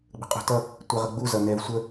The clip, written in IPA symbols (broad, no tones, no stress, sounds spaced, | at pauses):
ɡ͡b ə̤ qʼ ṳ t ʌ | tʷ ɛ ʁ ə ɡ͡b u z ʌ n ɛ v sʷ ə